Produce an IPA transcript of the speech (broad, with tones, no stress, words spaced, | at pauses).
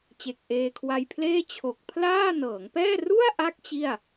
t͡ɕe˨˩k̚ʔeː˧kʰwa˧jpʰleː˥˩ t͡ɕʰo˨˩k̚pʰlaː˥˩ nɤː˩˦ŋpɛː˥˩ ru˥˩a̯ʔa˦˥k̚ t͡ɕi˥˩a̯